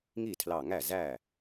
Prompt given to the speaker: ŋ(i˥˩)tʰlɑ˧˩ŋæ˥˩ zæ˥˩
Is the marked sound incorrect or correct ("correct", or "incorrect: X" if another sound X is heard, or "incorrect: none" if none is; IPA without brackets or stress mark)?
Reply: correct